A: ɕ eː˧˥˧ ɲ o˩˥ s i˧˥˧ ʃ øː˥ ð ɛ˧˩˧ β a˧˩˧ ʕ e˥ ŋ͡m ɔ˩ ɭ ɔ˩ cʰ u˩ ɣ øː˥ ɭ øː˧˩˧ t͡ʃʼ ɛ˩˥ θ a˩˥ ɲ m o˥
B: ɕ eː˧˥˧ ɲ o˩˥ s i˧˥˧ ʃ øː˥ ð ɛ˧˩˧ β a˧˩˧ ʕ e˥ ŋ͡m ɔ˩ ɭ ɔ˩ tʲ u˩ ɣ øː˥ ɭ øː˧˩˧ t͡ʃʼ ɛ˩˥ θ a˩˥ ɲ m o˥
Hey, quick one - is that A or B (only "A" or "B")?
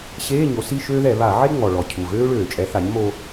A